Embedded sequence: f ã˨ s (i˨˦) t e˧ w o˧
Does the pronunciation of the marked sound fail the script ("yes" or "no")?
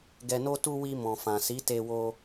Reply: no